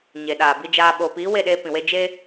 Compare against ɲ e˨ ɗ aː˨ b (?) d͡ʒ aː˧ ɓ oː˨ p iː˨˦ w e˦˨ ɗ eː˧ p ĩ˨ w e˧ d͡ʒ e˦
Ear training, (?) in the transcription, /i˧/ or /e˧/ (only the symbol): i˧